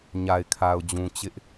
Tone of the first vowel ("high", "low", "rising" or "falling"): low